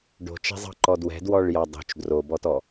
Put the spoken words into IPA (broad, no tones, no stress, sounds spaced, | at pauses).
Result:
ɖ o̤ t͡ʃ ɛ̤ zˤ ɑ̤ ǃ ɔ d w ɛ̤ d w ɔ ɭ j ɑ dˤ o̤ t͡ʃ d r o b ɔ t ɔ